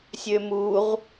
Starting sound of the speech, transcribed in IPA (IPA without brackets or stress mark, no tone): sʲ